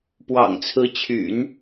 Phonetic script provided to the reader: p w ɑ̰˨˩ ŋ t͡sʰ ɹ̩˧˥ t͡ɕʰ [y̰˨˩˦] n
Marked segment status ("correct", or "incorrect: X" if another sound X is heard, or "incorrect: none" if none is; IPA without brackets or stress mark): correct